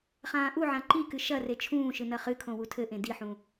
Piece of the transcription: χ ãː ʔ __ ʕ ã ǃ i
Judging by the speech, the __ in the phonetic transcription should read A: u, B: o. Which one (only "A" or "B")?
A